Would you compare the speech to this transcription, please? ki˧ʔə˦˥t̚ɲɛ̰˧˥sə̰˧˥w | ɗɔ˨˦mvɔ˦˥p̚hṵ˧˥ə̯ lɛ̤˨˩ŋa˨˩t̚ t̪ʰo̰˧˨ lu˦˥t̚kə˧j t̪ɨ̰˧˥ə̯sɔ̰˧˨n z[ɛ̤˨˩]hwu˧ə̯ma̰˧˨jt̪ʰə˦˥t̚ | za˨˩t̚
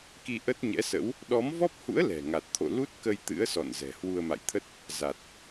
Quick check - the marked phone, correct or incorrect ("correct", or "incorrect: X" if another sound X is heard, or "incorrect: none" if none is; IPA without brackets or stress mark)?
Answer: correct